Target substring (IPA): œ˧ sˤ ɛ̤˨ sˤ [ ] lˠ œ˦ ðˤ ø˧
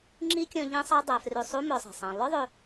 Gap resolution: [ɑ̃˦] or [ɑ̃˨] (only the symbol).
ɑ̃˨